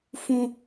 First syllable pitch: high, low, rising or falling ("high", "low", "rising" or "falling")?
high